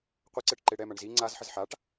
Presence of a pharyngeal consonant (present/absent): present